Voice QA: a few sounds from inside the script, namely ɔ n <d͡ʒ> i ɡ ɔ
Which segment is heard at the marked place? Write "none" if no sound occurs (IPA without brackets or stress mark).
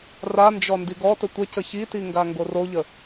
d